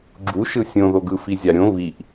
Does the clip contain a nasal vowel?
yes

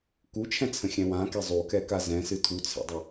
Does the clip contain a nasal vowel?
yes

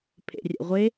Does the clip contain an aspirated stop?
yes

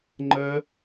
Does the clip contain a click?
yes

